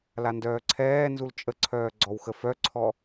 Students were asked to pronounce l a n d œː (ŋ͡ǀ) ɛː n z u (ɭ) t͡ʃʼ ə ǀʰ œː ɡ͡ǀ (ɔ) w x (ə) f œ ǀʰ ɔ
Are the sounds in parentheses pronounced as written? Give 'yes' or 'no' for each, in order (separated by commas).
no, no, yes, yes